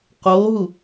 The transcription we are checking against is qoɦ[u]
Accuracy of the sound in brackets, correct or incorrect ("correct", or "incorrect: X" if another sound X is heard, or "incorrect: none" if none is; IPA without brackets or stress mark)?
correct